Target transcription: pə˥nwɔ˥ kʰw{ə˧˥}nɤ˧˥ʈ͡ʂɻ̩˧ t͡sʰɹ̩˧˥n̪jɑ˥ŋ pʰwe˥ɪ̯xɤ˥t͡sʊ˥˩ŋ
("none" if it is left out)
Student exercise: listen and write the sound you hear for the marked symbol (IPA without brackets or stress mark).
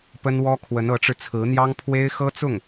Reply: ə˧˥